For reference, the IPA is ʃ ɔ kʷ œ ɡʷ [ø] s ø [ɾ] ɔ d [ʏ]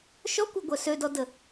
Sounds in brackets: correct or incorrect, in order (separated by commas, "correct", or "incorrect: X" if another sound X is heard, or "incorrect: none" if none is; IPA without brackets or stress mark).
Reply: incorrect: œ, incorrect: d, incorrect: ə